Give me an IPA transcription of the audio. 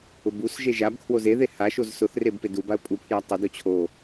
ʊ b u s ʒ e ʒ a b kʰ w o z e ð e h a ʃ o z s ʊ θ r e b p e d u b a ə̯ pʼ u pʰ j a tˤ ɪ d o t͡ɕʰ o

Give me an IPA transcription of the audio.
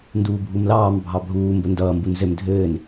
n d uː bʱ u m l ɑː m bʱ ɑ bʱ uː m b ə n d ʌː m b u n z ɘ m dʱ ɘː n

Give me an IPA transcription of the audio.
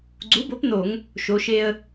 ɡ͡ǀ u˩˥ b o˩˥ p n o˧˩˧ ŋ | ʃ o˩˧ ʃ e˧ ə̯

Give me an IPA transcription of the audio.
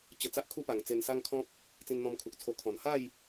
t͡ɕ ə˧ t͡s a˦ ʔ kʰ u˦ p a˨˩ ŋ t͡s e˧ n s a˦ ŋ kʰ ɔ̃˦ p̚ | t͡s ĩ˧ n n̪ ɔ̃˧ m kʰ u˨ k̚ t͡sʰ o˧ kʰ ɔ̃˨˩ n h a˥˧ j

